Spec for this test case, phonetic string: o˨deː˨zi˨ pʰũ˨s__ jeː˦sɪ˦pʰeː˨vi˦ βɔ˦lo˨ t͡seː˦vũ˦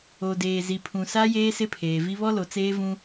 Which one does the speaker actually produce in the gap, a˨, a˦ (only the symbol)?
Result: a˦